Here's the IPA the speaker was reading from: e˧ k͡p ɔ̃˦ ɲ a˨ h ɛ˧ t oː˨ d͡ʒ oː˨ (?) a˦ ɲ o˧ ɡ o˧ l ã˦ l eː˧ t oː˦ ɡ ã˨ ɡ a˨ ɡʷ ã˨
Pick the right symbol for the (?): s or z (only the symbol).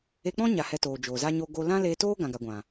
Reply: z